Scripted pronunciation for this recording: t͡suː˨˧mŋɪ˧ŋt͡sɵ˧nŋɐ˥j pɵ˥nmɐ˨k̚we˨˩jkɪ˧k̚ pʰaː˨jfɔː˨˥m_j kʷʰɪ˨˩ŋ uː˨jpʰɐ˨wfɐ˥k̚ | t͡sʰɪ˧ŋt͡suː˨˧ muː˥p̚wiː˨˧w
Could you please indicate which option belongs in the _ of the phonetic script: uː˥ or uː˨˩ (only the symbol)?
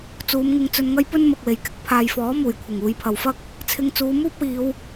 uː˨˩